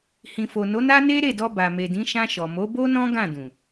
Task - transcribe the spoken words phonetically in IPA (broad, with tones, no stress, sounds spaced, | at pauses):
h ĩ˨ f o˨ n o˨˦ n a˦ n e˦ ɾ e˦˨ d ɔ˧ b a˨ m e˨ d ĩ˨˦ ʃ ã˧ ʃ ɔ˨ m o˨˦ b o˦ n ɔ̃˦ ɡ ã˦˨ d ũ˨